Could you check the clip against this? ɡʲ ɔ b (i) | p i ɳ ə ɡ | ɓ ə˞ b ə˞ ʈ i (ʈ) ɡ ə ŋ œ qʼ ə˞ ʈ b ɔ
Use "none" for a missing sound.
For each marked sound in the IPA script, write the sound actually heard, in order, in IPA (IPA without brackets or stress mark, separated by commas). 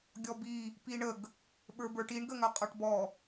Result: i, ɳ